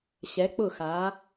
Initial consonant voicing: voiceless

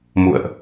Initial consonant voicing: voiced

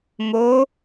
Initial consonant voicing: voiced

